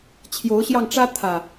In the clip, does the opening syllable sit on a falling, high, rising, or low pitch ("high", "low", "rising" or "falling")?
rising